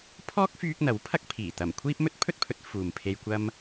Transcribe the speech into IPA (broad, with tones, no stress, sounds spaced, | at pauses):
pʰ ɔː˥ k̚ f yː˧ k̚ n̪ ɐ˨˥ w pʰ ɐ˥ k̚ pʰ iː˨˩ t̪ ɐ˨˩ m kʷʰ iː˥ p̚ m ɵ˥ t̚ pʰ ɵ˥ t̚ pʰ ɵ˨˥ t̚ f uː˨ m pʰ e˧ j kʷ ɐ˥ m